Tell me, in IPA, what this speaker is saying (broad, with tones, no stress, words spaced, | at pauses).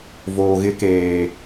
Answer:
voː˨ɣɪ˦keː˨